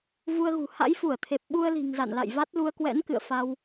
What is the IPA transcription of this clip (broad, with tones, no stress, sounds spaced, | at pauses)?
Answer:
v u˧ ə̯ ɣ ṳ˨˩ h a̰˧˥ j f u˧˩ ə̯ t̪ʰ e˨˩ p̚ ɓ u˧ ə̯ l i̤˨˩ ŋ z a̰˧˨ n l a̰˧˨ j v a˦˥ t̚ l u˧ ə̯ k w ɛ̰˧˥ n k ɨ̰˧˨ ə̯ f a˧ w